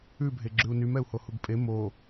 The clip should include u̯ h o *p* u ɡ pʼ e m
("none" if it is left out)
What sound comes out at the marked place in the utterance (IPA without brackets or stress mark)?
h